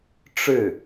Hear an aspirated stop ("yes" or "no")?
no